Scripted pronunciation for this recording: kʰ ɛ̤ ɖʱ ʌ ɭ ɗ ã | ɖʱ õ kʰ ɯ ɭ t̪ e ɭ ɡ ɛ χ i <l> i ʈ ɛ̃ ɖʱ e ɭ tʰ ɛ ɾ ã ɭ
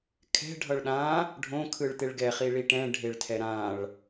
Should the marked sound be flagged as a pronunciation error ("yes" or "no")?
yes